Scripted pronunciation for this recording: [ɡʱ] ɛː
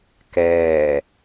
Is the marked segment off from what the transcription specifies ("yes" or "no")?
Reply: yes